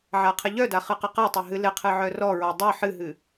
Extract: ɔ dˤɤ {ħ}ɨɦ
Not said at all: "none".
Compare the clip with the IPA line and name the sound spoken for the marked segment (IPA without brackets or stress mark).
ħ